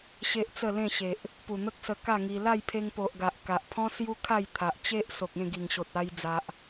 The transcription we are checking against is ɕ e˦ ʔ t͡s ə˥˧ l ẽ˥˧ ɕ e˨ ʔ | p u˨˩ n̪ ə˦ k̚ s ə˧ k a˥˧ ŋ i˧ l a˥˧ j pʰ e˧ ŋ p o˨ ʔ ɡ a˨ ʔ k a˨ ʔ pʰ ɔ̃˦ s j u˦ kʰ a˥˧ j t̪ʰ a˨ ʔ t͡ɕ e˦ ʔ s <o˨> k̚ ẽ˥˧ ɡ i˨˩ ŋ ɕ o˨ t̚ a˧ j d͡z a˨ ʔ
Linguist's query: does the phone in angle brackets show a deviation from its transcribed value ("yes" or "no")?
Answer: no